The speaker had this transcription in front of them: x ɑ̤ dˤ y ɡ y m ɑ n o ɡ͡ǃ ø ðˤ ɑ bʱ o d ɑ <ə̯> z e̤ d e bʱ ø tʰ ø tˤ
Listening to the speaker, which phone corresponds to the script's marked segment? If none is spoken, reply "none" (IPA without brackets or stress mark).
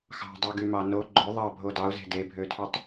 ʊ̯